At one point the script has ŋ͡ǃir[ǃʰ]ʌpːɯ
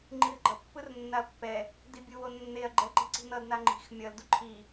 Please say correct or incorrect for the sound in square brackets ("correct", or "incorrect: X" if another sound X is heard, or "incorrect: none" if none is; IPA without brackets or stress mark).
incorrect: ɡ͡ǃ